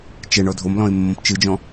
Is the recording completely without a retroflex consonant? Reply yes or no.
no